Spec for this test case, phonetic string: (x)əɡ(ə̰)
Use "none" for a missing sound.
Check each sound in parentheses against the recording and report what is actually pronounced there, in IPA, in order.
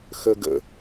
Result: x, ə̰

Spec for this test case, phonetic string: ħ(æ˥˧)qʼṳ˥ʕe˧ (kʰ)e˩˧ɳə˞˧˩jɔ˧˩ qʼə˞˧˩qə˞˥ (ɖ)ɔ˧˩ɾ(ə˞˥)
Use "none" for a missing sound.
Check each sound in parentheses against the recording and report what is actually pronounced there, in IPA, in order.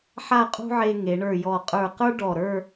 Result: a˥˧, ŋ, ɖ, ə˞˥˧

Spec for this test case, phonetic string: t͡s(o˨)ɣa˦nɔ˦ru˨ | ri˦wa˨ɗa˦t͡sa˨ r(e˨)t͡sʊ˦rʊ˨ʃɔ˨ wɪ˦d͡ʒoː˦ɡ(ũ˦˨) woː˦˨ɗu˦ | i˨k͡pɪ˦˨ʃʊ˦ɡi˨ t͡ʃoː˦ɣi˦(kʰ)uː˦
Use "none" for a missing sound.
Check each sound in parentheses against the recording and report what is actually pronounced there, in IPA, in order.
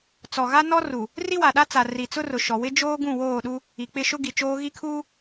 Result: ɔ˨, i˨, ũ˦˨, kʰ

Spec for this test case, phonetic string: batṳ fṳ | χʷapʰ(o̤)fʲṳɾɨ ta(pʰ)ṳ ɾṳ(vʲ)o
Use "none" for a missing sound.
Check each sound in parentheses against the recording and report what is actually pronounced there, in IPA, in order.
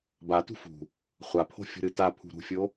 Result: o̤, pʰ, fʲ

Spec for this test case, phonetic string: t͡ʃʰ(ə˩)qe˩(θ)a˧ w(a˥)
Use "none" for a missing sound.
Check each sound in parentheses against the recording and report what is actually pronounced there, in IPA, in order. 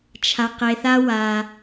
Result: a˩, θ, a˩

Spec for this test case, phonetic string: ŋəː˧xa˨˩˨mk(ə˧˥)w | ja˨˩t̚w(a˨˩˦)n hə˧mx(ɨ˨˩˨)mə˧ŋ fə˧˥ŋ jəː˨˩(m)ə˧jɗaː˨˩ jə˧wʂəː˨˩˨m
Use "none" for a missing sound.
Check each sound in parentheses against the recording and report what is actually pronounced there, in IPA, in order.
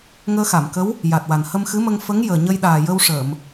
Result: ə˧˥, a˨˩, ɨ˧˥, ɲ

